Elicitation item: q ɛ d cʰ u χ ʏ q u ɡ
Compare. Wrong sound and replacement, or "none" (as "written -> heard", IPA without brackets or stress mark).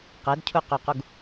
χ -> q